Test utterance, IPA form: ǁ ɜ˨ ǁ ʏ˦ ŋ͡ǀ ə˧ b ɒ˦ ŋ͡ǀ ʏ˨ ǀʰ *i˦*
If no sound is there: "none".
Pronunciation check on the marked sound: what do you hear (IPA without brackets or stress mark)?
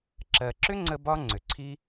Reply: i˦